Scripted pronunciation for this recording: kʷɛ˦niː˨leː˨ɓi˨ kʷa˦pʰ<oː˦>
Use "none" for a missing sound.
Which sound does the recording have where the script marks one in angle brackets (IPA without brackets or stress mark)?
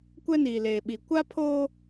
oː˦